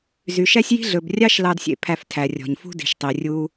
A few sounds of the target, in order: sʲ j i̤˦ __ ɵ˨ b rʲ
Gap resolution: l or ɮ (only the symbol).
ɮ